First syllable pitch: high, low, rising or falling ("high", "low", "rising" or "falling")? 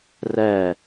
falling